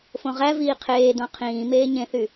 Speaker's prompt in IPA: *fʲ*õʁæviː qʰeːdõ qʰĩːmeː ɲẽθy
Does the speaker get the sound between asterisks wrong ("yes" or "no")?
yes